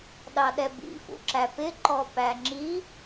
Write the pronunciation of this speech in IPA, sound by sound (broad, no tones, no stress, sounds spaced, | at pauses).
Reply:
ɗ ɑ ɗ ɛ b ḭ f ṵ ǁ æ p ɪ ǃ ɔ p æ ŋ͡ǁ i